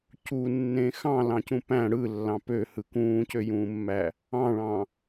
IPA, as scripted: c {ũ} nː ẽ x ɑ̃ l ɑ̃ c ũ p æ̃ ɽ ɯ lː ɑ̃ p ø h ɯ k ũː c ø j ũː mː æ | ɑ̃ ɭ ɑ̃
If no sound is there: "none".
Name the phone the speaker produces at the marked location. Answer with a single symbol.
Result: u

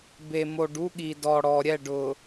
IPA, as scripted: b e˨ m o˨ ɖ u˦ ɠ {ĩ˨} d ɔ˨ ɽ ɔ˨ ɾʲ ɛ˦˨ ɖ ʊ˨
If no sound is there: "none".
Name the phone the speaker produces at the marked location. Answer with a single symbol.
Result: i˨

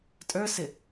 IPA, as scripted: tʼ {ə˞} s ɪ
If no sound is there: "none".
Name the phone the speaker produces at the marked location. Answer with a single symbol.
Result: ə˞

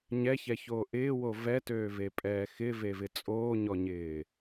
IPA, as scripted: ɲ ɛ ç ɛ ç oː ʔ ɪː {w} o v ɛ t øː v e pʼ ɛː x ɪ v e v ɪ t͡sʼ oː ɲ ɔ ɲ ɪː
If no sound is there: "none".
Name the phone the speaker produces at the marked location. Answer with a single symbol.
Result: w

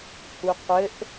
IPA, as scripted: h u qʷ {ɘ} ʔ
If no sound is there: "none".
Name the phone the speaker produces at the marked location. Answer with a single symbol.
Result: ɘ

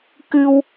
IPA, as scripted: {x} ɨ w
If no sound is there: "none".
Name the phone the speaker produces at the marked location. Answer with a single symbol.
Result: k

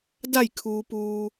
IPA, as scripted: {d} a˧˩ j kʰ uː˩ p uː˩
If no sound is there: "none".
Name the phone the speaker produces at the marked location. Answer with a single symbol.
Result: d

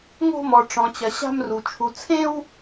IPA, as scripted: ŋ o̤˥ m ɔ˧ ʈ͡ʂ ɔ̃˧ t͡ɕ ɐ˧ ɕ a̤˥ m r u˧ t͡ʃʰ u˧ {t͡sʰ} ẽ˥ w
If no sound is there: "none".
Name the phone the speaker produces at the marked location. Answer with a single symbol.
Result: t͡sʰ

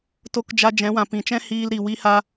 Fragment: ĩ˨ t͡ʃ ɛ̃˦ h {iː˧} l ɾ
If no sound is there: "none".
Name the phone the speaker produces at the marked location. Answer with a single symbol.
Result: iː˧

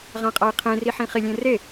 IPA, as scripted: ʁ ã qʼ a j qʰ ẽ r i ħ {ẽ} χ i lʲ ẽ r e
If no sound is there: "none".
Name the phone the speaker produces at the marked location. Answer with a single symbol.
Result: ĩ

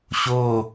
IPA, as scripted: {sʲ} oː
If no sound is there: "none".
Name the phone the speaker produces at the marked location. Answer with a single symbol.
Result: ɕ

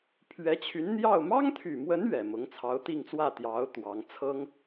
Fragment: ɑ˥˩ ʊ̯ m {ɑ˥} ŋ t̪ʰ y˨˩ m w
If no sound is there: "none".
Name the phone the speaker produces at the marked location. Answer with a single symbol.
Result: ɑ˥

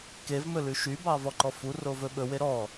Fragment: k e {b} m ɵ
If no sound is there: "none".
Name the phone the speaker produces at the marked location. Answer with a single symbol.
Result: v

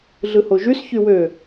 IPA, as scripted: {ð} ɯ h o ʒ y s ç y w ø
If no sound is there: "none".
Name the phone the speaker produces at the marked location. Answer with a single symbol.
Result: ɮ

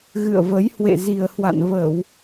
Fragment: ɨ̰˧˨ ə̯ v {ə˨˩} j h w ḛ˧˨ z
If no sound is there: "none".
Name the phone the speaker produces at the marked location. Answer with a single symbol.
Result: ə˨˦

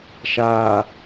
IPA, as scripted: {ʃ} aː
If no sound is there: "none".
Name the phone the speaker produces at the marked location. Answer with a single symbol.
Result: ʃ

